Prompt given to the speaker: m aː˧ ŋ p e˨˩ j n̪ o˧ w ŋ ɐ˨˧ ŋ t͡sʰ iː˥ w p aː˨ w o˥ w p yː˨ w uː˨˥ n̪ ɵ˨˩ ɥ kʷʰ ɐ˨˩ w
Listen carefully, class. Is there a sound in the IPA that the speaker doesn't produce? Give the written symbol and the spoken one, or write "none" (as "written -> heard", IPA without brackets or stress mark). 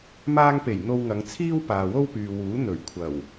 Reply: none